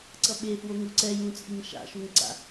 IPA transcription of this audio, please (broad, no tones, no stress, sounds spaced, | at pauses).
ǀ ʌ ɓ e f w o ŋ u ǀ ɛ j ũ t͡sʼ i ŋ ʃ a̰ ʃ u ŋ ǀ a̰